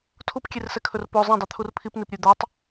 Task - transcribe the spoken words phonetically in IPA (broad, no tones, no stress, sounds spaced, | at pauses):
tʰ u p kʲ e r s ɛ kʰ ɵ r p o zˤ ĩ dˤ y t̪ʰ u r pʰ i p n i p ɾʲ ʉ d̪ œ tˤ